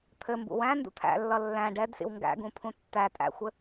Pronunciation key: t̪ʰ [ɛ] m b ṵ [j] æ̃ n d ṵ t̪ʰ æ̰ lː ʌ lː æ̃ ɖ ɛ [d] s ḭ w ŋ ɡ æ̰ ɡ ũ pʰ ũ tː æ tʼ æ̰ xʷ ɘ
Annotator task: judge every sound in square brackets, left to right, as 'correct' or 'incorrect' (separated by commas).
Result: incorrect, incorrect, correct